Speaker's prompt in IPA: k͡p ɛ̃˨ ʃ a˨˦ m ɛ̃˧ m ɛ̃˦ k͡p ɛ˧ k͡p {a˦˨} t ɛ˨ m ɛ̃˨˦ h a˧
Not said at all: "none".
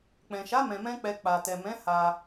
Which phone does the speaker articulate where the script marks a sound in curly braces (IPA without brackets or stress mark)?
a˨